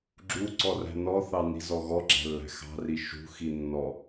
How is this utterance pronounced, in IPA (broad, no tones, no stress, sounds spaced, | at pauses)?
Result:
ɡ͡ǁ u ǀ ɔ r æ̤ n ɔ θ ɑ n i̤ z ɔ ɣ ɔ ɡ͡ǁ æ̤ lː æ̤ x ɑ̤ r i ʃ ṳ x i nː ɔ